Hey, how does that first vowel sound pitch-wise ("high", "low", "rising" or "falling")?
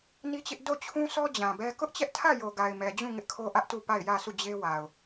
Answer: high